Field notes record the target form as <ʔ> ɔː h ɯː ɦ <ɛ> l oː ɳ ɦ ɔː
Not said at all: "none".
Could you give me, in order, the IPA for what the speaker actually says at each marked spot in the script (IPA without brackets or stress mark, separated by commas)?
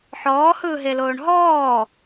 ħ, e